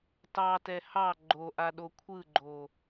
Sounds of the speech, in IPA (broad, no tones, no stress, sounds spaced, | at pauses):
t ɑ t ɛ h ɑ ɡ͡ǃ o ʔ a ɗ o kʷʰ ɯ ɡ͡ǃ o